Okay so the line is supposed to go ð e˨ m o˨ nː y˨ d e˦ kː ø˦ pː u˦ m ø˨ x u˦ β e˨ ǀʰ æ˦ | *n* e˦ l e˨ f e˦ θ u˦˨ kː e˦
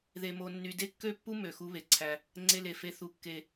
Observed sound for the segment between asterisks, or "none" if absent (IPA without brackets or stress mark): ŋ͡ǀ